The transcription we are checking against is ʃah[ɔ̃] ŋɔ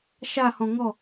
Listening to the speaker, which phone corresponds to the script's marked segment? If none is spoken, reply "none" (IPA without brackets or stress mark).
ɔ̃